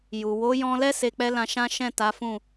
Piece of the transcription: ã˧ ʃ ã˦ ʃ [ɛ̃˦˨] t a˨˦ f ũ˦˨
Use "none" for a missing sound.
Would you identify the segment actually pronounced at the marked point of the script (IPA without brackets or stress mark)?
ɛ̃˦˨